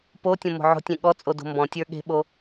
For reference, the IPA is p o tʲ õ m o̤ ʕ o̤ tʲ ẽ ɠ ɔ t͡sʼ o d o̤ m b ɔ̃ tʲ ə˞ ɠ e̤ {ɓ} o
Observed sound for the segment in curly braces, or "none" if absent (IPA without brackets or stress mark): ɓ